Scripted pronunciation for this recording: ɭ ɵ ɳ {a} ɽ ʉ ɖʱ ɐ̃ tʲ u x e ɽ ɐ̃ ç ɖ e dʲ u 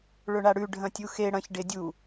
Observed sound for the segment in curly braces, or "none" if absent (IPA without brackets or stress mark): a